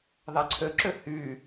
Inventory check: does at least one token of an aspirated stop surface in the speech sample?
yes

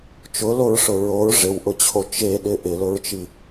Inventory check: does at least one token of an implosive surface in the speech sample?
yes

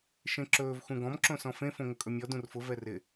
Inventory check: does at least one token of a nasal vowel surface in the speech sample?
yes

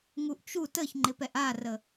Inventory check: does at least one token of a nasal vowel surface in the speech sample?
no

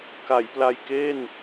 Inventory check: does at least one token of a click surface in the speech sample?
no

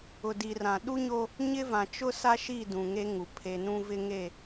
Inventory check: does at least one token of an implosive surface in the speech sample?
yes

